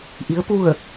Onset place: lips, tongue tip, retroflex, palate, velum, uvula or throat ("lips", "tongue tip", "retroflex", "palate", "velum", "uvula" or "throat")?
throat